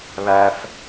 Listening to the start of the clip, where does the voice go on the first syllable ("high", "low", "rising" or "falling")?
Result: low